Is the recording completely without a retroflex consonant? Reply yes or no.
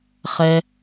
yes